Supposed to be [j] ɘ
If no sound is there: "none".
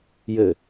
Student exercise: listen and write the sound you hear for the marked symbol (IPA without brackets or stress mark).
j